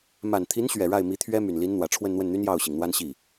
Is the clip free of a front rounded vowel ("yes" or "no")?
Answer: no